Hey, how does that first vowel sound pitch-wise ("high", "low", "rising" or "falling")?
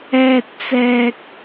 high